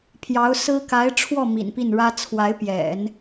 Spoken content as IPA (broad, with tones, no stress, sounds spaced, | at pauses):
pʰ j ɑ˧˥ ʊ̯ s ɹ̩˥ k a˧˥ ɪ̯ ʈ͡ʂʰ w ɔ˥˩ m ḭ˨˩ n p i˥˩ n ɻ ä˥ t͡sʰ w a˧˥ ɪ̯ p j ɛ̰˨˩˦ n